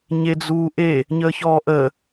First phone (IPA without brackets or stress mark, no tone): ɲ